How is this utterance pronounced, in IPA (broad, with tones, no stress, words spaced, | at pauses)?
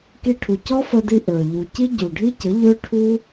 ki˧ʈʰu˨ cɔ˦fə˧di˧ ʔə˞˨ ʎu˨ ci˦ɟu˨ɖʱi˦cə˨˦ ʎø˦ʈʰu˦